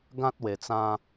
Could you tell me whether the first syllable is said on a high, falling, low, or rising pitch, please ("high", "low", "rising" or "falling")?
high